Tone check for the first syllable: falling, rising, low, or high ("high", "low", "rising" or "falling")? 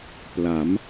rising